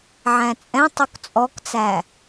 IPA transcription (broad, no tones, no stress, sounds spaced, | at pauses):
ʕ æ̃ t͡sʼ ɛ̃ tˤ u k t͡sʼ ɔ k t͡s æ